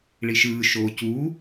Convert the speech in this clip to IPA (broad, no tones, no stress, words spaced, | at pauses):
ɭiʃɯː ʃoːcuː